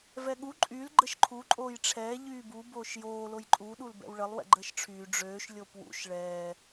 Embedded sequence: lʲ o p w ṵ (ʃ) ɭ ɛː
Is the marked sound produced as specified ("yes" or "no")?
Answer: yes